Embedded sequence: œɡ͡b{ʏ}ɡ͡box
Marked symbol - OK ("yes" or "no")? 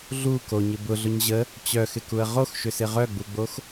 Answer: no